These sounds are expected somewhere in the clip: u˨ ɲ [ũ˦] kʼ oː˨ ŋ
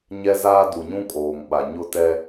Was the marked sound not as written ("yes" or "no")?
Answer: no